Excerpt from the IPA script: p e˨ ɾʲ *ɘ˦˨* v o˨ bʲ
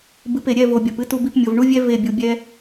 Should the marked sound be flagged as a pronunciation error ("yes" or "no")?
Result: yes